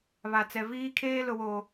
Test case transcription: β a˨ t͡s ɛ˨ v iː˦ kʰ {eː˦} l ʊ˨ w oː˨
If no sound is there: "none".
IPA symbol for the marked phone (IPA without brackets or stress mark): eː˦